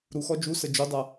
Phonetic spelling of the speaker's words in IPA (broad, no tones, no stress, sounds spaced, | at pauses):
ɾ u x ɔ d͡ʒ u s ə d͡ʒ u dˤ a